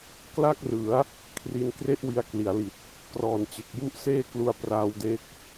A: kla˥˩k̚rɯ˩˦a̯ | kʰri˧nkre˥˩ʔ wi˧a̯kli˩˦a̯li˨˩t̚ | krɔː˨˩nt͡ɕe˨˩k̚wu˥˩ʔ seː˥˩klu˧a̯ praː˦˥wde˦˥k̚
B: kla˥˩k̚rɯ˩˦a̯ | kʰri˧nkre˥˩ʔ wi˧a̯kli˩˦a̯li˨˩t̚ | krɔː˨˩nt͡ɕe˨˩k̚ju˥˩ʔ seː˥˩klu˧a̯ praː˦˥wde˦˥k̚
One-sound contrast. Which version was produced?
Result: B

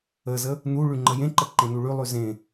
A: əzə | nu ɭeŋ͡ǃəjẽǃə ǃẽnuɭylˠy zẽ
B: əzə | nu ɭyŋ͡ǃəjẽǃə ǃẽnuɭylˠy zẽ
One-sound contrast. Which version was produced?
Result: B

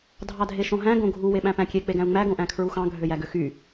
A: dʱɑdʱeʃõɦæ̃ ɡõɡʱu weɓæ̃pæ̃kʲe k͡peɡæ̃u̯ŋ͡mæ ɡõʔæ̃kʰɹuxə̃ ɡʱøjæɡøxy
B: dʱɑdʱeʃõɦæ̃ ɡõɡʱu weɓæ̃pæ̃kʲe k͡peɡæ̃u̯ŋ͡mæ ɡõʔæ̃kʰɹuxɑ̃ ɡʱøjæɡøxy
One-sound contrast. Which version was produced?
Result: B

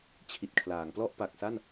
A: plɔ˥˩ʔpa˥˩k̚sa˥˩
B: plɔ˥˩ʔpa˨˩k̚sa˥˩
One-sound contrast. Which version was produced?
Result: B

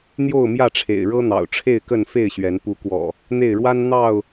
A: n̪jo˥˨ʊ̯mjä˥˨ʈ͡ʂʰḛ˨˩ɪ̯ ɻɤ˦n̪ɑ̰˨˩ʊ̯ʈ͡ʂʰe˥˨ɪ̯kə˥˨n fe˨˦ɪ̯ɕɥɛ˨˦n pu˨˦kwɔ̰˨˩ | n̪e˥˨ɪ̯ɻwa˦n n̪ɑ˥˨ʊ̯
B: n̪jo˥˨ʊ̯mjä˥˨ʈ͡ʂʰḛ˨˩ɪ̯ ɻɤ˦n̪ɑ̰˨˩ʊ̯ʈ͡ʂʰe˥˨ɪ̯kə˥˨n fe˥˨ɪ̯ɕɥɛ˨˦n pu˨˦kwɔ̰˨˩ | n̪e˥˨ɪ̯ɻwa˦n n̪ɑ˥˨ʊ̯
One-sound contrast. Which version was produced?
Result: B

